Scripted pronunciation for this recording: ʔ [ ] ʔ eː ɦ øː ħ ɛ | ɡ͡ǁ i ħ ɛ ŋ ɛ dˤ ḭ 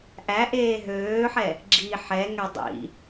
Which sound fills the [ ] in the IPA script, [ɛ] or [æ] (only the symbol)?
æ